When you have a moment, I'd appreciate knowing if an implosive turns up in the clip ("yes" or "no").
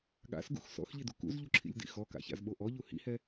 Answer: yes